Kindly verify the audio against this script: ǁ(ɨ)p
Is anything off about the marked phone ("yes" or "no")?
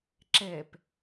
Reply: yes